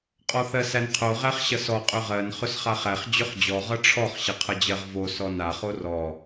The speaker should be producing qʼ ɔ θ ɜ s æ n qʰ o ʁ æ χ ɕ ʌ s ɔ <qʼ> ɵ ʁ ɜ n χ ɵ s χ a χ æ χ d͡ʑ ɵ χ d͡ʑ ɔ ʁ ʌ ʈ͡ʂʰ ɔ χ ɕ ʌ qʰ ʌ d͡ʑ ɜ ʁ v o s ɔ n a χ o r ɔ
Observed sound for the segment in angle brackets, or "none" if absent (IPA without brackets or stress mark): qʼ